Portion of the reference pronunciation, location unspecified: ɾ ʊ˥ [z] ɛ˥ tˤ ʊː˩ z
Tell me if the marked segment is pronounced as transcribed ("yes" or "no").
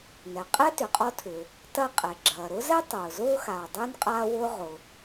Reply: yes